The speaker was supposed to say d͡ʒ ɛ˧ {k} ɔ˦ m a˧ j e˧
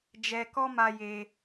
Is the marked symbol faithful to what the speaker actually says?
yes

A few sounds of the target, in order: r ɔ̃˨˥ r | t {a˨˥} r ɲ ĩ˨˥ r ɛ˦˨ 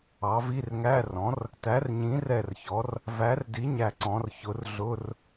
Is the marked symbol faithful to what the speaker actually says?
no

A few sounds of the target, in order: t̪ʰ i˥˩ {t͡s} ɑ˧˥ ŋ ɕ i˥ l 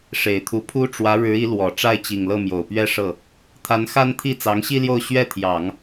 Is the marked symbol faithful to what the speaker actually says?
yes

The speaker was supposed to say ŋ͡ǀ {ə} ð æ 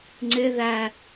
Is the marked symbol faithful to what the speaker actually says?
no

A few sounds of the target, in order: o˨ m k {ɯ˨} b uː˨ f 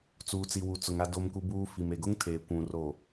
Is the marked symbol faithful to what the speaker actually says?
no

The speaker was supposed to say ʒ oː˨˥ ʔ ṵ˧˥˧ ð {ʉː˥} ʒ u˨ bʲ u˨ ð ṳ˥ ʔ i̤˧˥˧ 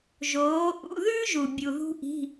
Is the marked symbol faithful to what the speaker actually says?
yes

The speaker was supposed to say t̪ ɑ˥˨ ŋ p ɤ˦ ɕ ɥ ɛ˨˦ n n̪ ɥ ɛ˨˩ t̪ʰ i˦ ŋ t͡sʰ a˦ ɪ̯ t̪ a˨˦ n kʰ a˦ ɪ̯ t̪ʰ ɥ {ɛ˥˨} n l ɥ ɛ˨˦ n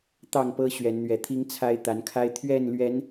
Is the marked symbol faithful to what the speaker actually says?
yes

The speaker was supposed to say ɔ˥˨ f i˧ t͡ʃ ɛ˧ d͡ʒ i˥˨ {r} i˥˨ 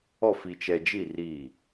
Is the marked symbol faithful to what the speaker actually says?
yes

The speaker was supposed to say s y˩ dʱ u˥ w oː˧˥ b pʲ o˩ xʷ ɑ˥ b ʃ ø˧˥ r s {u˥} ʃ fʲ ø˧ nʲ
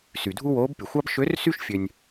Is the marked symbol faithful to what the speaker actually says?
no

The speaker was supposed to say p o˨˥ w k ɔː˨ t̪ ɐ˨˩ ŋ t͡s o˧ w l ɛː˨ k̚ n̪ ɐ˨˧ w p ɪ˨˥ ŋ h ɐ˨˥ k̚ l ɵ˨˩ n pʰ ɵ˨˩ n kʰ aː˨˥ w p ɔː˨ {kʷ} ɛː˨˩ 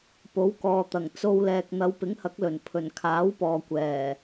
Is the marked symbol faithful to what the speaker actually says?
yes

